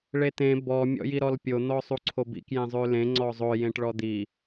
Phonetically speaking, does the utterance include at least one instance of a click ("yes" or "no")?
yes